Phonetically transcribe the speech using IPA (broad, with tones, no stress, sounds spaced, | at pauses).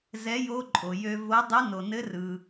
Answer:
z ɛ˧˥ j o˧˥ ǃʼ o˩ j ø˧ v o˧˥ dˤ ɯ˧˥ n o˩ n ɘ˧˥ r ɯ˩